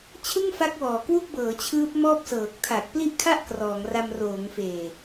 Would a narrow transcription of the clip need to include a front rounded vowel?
no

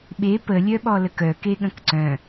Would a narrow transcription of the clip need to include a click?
yes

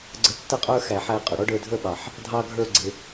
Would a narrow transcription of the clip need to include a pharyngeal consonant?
yes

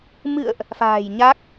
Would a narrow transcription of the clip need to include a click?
no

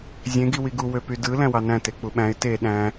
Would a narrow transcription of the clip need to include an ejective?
no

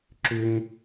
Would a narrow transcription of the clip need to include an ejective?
no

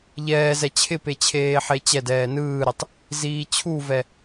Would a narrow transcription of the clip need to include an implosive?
no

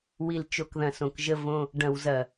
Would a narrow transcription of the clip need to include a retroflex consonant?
yes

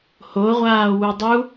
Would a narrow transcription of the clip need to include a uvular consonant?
yes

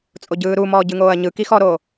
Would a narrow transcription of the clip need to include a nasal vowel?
no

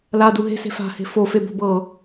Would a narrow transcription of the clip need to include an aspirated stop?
no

